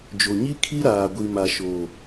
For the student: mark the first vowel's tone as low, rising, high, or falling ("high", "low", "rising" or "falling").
low